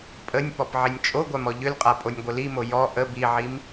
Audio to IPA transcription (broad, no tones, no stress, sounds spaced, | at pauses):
pʼ ə nʲ p ɔ p ʕ i nʲ t͡ʃʼ o ɡʷ a m ɔ ʎ ʏ l qʼ a pʼ o nʲ ɡʷ ə l i m o j ɔ ʔ ə b i ʕ i m